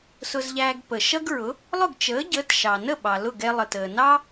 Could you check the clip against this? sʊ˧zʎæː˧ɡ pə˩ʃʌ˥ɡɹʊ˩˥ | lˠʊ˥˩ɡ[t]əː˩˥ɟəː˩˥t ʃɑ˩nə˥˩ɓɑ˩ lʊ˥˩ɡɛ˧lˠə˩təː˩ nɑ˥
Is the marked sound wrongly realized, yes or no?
yes